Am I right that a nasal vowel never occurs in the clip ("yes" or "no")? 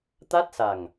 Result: yes